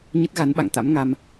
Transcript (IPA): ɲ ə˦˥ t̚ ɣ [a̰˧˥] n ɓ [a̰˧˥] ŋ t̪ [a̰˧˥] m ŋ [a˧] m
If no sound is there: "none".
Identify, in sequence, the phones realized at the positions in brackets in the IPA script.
a˨˦, a̰˧˨, a̰˧˥, a˧

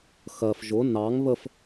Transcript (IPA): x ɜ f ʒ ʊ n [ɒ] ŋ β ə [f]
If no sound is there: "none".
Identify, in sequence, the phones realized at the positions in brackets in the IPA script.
ɑ, f

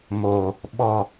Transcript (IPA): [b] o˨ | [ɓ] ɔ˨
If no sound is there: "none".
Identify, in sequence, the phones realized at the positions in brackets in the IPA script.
m, ɓ

